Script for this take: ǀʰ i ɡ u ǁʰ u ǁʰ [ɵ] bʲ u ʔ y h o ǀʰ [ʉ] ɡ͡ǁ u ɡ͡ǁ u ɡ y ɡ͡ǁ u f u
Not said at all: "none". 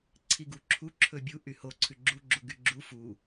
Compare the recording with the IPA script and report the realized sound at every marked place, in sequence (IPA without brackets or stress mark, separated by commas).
ɵ, ʉ